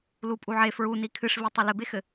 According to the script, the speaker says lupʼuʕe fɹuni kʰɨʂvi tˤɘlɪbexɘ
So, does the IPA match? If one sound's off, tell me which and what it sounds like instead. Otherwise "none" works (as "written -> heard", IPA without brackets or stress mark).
none